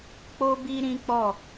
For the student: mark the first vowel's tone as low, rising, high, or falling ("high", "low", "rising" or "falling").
high